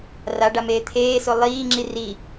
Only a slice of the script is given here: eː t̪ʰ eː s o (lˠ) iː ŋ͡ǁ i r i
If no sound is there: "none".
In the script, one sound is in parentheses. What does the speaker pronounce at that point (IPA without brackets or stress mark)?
lˠ